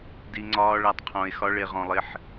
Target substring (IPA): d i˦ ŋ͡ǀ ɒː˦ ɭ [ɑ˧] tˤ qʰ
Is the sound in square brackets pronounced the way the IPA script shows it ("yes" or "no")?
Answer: no